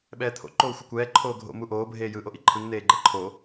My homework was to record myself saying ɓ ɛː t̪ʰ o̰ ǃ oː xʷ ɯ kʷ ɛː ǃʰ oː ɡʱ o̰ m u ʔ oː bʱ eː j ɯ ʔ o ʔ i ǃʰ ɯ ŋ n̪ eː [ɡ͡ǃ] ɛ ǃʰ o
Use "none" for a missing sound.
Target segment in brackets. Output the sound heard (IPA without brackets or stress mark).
ɡ͡ǃ